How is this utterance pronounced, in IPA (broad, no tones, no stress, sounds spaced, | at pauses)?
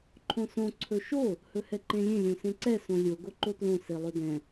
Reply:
ǃʰ õ s õ ǀʰ ɵ ʃ o | h ɵ h ɛ ǃ ẽ lʲ ẽ lʲ õ s ẽ ǀ ɛ s õ lʲ o ɡ o ǃ o t l õ s e lˠ ɵ d ɛ̃